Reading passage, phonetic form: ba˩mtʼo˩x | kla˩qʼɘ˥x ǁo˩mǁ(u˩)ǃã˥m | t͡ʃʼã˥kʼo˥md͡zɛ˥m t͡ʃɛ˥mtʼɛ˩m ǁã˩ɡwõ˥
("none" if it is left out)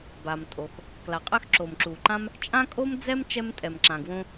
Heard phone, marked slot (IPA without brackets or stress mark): u˩